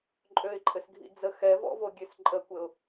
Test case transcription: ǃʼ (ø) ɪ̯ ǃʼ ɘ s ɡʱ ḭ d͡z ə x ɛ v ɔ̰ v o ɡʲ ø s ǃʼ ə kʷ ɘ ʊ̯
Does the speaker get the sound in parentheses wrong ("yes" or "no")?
no